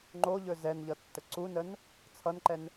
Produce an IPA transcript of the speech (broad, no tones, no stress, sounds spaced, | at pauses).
ŋ͡ǃ o ʎ ɵ z ɛ n ʎ ʌ tː ə ǀ u n ə n | t͡sʰ ʌ n ǃ ɛ n